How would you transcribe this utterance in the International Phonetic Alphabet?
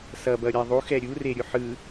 s ʌ b ʌ ɾʲ a ðˤ u x ɛ ɾʲ u r e ɾʲ u ħ ɯ

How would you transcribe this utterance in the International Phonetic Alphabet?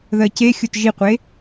ð ɜ c e xʲ o t ʒ i qʷ e

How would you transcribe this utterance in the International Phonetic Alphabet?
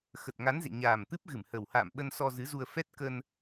x ə˨˩ t̚ ŋ a˨˦ n z ḛ˧˨ ɲ aː˨˩ m t̪ ɨ˦˥ p̚ ɣ ɨ˧˩ m h ə˨˩ w h a̰ː˧˨ m ɓ ə˧ n s ɔ˧ z ɨ˨˦ z u˧ ə̯ f ɛ˦˥ t̚ k ə˧ n

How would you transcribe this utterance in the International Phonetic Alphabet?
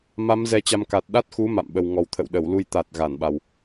m a˨˦ m z ɛ˧ t͡ɕ a˧ m k a˨˩ t̚ ɗ a˦˥ t̚ x u˨˦ m a̰˧˨ m ɓ ə˨˩ w ŋ ɔ˨˩ w t̪ʰ ə̰˧˨ w ɗ ə˧˩ w l u˧ j t̪ a˨˩ t̚ ɣ a˧˩ n ɓ a˨˩ w

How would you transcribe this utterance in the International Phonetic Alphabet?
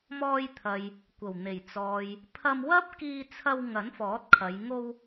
m ɔː˧ j t̪ʰ ɐ˨ j | kʷ ɐ˨˩ w n̪ e˨˩ j t͡s ɔː˨ j | pʰ ɐ˧ m w ɐ˥ p̚ k iː˧ t͡sʰ ɐ˧ w ŋ ɐ˨˥ n f ɔː˨˥ t̚ kʰ ɐ˨˧ j ŋ o˧ w

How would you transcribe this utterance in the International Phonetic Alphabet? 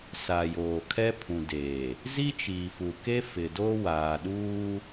s a˨ j oː˨ kʰ ɛ˦ pʰ ũ˨ d eː˨ | z i˦ t͡ʃ iː˨ f u˨ k e˦ f ɪ˨ d o˦ w aː˨ ɗ uː˦

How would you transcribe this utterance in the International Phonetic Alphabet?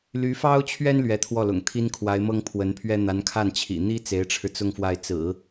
l y˧˥ f ɑ˥ ʊ̯ t͡ɕʰ ɥ ɛ˥ n l ɥ ɛ˧˥ t̪ʰ w ɔ˥˩ l ʊ̰˨˩ ŋ t̪ʰ i˥ n kʰ w a˧˥ ɪ̯ m ɤ˥ ŋ pʰ w ə˧˥ n pʰ ɥ ɛ˥ n̪ a˧˥ n kʰ a˥˩ n t͡ɕʰ ḭ˨˩ n̪ i˥ t͡s e˧˥ ɪ̯ ʈ͡ʂʰ ɻ̩˧ t͡s ʊ˥˧ ŋ f w a˥˩ ɪ̯ t͡s ɹ̩˨˩˦

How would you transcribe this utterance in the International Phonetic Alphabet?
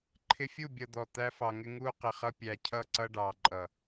ǃʰ ɪ˥ fʲ u˥˧ bʲ ʌ˧ d̪ ɔ˧˩ t̪ æ˥ f ɑ˧ ŋ ɪ˥ ŋ uː˥ q ɪ˧ χ ʌ˥ pʲ æ˧ cʰ ʌ˥˧ ǀ ʌ˥ ɖ ɑː˧ ǃʼ ʌ˧˩

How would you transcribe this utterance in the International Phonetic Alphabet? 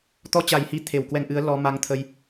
t̪ ɔ˧ t͡ɕ a˨˩ j h i˨˦ t̪ʰ e˨˩ w k w ɛ˧ ŋ ʔ ɨ˨˦ ə̯ l ɔ˧ m a˧ ŋ t̪ʰ ə˧ j

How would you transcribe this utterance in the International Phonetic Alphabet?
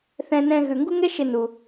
θ ɛ̃˦ n ɛ̃˦ ɣ ʉ˨ ŋ ɡ u˦ ŋ ɛ˦ ʃ ɪ˧ n u˧

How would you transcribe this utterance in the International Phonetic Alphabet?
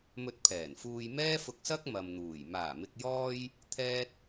m ɵ˧ t̚ pʰ ɛː˨˩ n f uː˧ j m ɛː˥ f ʊ˧ k̚ s ɐ˥ k̚ m ɐ˨ m n̪ uː˨˩ j m aː˨˩ m ɪ˨ k̚ j ɔː˧ j | t̪ʰ ɛː˥ t̚

